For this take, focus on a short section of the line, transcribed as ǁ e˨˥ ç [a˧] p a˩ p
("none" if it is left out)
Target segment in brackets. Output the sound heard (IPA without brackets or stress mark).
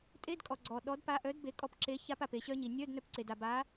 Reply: a˧